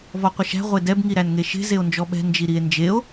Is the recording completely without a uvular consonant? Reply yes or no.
no